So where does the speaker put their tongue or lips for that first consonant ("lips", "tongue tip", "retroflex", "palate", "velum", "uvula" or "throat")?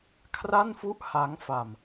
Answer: velum